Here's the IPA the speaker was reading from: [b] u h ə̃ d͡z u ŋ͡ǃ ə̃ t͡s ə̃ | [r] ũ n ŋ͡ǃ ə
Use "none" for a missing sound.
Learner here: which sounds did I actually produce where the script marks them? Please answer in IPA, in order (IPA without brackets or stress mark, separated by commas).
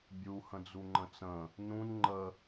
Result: bʲ, n